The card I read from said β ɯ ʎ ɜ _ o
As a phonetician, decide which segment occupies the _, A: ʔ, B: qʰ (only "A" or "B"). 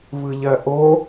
A